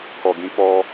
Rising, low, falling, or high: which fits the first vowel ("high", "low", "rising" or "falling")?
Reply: low